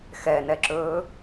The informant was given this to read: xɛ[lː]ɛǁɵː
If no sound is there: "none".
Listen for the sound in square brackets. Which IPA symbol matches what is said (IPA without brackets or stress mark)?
n